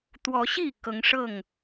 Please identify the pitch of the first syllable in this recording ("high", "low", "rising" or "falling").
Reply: rising